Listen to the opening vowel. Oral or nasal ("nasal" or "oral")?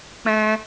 nasal